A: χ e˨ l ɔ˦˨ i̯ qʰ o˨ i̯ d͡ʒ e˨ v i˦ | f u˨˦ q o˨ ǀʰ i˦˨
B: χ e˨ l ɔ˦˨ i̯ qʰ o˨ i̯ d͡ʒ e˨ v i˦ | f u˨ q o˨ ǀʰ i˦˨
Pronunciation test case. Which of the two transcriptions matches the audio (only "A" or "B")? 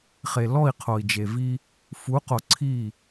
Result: A